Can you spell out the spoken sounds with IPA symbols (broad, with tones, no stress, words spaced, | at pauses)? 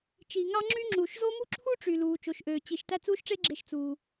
t͡ʃi˩ ŋɑ˥ŋ͡ǁy˥ ŋ͡ǁu˩ʃzo˥ mu˥ǁʰu˥ʈ͡ʂy˩ luː˩t͡ʃo˩ʃʔøː˩ t͡ɕi˩ʃ tæ˥t͡suː˥ʃʈ͡ʂe˥ɡ͡ǁe˧ʃ t͡suː˩